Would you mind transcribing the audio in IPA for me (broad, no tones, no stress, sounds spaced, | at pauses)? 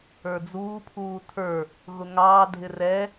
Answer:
ə˞ d͡z uː pʰ uː tʰ ə˞ | ɣ ʊ ŋ ɑː dʱ ɪ r ɛ